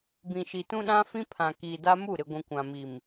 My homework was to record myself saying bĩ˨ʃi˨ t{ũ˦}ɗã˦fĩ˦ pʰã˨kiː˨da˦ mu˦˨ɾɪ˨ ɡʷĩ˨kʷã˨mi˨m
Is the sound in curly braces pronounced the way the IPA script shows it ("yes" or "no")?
yes